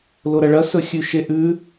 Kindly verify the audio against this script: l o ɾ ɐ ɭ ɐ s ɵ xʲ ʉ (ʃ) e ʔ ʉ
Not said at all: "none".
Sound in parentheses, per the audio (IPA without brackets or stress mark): ʃ